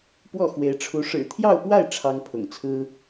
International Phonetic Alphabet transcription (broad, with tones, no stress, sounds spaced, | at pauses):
p w ɔ˥˩ x w e˧˥ ɪ̯ ʈ͡ʂʰ u˧˥ ʂ ɻ̩˨˩ t̪ʰ j ɑ˥˧ ʊ̯ p w a˥˩ ɪ̯ ʈ͡ʂʰ ɑ˥ ŋ pʰ ʊ̰˨˩ ŋ t͡sʰ ɹ̩˥